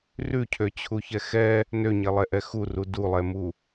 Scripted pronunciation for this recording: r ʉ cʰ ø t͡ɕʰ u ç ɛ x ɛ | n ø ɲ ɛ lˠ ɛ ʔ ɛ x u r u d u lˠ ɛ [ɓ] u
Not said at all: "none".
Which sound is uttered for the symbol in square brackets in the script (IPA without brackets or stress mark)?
m